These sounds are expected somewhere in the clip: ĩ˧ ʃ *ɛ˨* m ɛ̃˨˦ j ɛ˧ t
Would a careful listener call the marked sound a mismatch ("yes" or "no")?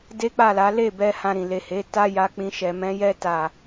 no